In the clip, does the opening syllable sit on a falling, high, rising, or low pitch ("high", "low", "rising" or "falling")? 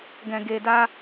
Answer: low